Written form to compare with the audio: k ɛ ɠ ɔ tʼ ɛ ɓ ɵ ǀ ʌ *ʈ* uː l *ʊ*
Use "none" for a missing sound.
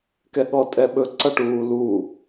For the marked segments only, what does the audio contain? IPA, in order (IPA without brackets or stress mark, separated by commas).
ʈ, u